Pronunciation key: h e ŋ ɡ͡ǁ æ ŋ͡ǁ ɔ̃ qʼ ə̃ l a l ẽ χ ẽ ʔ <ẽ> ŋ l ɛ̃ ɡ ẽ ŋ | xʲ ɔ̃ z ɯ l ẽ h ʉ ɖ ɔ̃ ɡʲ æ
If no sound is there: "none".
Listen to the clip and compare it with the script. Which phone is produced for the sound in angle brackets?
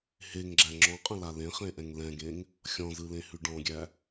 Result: ɛ̃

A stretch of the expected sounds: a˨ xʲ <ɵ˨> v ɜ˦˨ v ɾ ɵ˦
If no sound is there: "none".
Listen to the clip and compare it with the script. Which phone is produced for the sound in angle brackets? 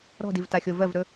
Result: o˨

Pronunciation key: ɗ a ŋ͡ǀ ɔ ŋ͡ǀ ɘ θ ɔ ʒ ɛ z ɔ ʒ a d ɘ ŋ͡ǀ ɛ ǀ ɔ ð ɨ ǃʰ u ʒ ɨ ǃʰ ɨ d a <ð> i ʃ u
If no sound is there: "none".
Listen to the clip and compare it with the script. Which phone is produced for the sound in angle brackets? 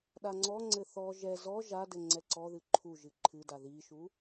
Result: ð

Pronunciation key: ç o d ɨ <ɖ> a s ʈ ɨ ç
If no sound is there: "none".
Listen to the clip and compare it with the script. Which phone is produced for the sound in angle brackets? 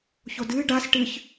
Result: ɖ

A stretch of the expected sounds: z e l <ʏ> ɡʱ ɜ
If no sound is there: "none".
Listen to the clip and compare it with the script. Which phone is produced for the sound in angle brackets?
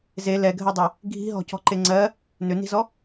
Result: ɛ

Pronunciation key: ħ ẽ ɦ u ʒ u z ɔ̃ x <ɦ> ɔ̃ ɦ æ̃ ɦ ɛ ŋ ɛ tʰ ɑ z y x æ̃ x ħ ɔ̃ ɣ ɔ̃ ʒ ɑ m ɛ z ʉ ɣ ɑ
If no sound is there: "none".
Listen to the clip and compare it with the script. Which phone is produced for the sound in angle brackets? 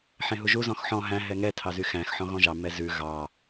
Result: ħ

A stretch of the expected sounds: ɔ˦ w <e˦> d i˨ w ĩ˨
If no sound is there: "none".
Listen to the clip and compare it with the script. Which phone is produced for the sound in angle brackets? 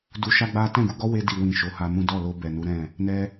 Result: e˧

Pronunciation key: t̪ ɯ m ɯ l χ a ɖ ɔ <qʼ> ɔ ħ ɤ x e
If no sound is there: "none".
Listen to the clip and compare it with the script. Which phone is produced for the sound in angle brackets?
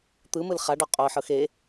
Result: qʼ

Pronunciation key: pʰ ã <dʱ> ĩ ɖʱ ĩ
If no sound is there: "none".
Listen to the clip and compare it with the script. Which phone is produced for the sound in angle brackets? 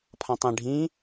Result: tˤ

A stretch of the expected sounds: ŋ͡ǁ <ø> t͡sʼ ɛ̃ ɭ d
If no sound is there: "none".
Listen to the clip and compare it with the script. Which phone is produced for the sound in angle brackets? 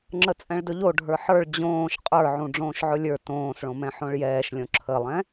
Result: ə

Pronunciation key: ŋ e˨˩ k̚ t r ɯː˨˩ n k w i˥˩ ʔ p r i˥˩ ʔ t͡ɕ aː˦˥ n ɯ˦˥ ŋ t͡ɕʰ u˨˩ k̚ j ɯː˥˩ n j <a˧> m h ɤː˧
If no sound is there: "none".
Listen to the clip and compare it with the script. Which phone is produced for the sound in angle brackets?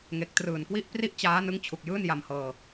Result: a˧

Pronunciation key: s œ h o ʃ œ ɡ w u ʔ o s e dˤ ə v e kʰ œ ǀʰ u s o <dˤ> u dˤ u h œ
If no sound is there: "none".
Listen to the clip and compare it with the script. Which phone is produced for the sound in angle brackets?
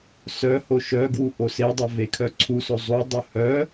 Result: zˤ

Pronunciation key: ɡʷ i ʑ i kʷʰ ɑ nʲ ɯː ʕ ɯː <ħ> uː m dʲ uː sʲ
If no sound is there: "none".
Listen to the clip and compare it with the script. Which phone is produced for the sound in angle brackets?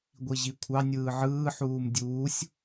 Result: ħ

